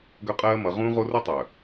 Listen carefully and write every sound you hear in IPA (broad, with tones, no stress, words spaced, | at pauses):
ɡœ˦qʼɜː˦mʌ˨˦ ʁũː˦ʁo˦rɯ˦tˤœ˨